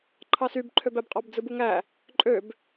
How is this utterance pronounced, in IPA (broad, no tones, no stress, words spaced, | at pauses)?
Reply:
ǃʰɑsybǃʰøbæb qʼɑbd͡zɯbuŋæ | ǃʼøb